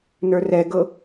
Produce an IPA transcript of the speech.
n ə˞ r ɛ ɡ ɤ

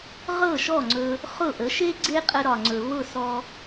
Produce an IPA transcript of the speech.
ʁ ɤ˥˩ ʃ ɔ˥˩ ŋ͡ǀ ɵ˧ | χ ʊ˥˩ ʔ ə˩˥ ʃ e˥ ɡ͡ǀ e˥ qʼ ə˧ ɾ ɒ˩ ŋ͡ǀ ɵ˩ β ʊ˥˩ s ɔ˧

